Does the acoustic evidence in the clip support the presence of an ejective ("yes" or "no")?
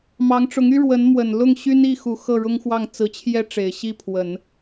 no